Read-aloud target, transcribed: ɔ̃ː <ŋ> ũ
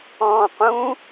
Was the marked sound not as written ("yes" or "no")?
yes